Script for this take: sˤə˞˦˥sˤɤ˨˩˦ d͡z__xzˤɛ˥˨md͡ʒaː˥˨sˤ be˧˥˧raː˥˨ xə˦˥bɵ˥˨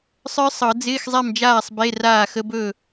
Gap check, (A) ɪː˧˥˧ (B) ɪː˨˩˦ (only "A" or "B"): A